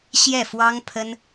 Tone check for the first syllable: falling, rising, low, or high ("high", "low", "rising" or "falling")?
falling